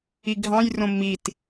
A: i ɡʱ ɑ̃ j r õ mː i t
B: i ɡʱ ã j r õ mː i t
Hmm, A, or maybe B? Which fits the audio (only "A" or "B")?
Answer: A